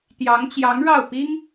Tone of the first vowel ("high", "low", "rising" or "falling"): rising